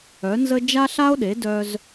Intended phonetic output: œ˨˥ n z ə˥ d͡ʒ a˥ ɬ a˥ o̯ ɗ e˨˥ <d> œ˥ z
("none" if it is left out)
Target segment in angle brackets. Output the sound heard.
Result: d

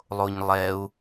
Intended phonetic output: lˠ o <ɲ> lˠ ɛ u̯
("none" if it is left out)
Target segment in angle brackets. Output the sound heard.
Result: ɲ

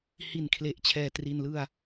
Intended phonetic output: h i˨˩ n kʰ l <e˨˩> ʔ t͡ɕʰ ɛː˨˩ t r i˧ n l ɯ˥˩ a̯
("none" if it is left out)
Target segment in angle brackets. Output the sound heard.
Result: e˨˩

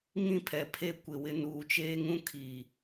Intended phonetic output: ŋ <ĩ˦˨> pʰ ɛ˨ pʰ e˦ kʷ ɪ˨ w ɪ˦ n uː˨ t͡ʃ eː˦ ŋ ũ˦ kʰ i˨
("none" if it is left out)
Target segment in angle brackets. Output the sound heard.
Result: ĩ˦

